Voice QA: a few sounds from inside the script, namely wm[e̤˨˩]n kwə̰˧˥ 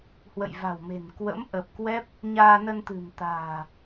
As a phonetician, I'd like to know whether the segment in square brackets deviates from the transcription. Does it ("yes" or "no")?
no